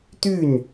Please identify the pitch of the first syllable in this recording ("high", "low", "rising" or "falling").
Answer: falling